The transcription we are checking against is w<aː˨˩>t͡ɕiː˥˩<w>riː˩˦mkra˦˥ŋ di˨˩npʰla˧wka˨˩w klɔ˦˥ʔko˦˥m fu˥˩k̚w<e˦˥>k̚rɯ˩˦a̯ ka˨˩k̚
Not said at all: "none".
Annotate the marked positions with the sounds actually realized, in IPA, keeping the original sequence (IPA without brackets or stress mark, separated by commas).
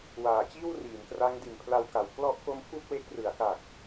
aː˨˩, w, e˦˥